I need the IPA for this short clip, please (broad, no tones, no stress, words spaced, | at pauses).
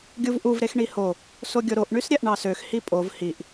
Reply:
ɡʲuvʔuv ɾexɳiho | soɡʲoɾoʔ ɳysɾʲæʔɳɑsøx hipʼov hiʔ